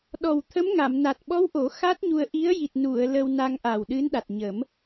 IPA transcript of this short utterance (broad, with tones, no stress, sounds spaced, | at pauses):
ɗ ɔ˨˩ w t̪ʰ ə˧˥ m ŋ a˨˩˨ m n a˨˩ t̚ ɓ ɔ˧˥ w ʔ o˨˩˦ x a˦˥ t̚ ɲ u˧ ə̯ ʔ i˧˥ ə̯ j i˨˩ t̚ n u˨˩˨ ə̯ l ə˧ w n a˧ ŋ ʔ a˨˩ w ɗ ɨ˧˥ n ɗ a˨˩ t̚ ɲ ə˨˩˦ m